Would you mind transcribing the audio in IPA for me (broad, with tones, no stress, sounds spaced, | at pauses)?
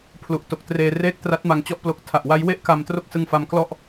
pʰ l u˨˩ ʔ t o˨˩ k̚ t r eː˧ r eː˥˩ k̚ t r a˦˥ t̚ m a˧ ŋ t͡ɕ ɔ˥˩ ʔ p l o˦˥ k̚ tʰ a˨˩ ʔ w a˦˥ j w e˥˩ ʔ k a˧ m t r o˥˩ k̚ s ɯ˧ ŋ f a˦˥ m k l ɔ˥˩ ʔ